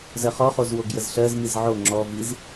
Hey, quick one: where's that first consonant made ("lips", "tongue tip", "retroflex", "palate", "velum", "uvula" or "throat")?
tongue tip